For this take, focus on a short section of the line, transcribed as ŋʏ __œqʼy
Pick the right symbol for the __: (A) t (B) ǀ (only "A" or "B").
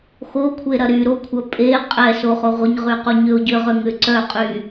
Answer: B